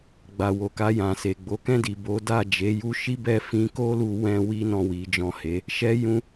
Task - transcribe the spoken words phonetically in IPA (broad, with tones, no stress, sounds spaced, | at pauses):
ɡ͡b a˨ w o˨ k a˧ j ã˨ s e˨ ɡ͡b o˨˦ k ɛ̃˦˨ d i˨ b o˨˦ d a˦˨ d͡ʒ e˨˦ j u˦ ʃ i˦ b ɛ˦˨ f ĩ˨˦ k o˦ l u˧ w ɛ̃˦ w i˦ n ɔ̃˦˨ w i˨˦ d͡ʒ ɔ̃˦˨ h e˨˦ | ʃ ɛ˦ j ũ˦